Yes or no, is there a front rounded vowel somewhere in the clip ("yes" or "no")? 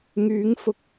yes